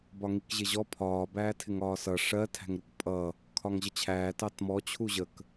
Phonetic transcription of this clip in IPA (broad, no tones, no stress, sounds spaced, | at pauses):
b ɒ ŋ i k ʑ ɪ ʑ ɔ pʰ ɒː b æː tʰ ɪ ŋ ɒː s ʌ ʂ ɜ tʰ æ̤ ŋ ɾ u k pʼ ʌ | kʰ ɒ ŋ ʑ ə t͡ɕʰ æː t ɑ t m ɔ t͡ɕʰ u ʑ ə k